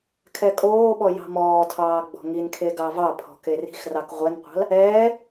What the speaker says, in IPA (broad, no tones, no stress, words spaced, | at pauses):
kʰɛkʼoːɓɔ jɑ̤mɔːtʰɑː ɡ͡bɔ̤ŋinkʰe ɡɑvɑpʰɔ̤ keri̤xrɑk ʁʷɛnqʷɑ̤l | ɛː